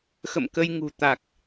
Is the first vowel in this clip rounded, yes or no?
no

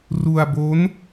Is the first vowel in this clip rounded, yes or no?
yes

